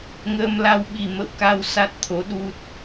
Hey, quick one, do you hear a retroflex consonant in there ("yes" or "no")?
no